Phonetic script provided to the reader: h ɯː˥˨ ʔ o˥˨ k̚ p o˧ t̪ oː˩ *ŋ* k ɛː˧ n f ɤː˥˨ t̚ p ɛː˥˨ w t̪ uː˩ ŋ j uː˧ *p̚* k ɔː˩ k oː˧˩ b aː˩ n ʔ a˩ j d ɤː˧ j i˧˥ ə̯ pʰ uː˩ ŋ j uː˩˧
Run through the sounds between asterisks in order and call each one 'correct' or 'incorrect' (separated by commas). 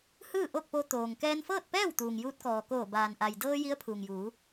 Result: correct, incorrect